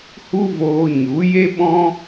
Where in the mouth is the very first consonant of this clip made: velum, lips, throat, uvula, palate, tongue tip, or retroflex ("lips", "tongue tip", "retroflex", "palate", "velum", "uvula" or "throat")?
throat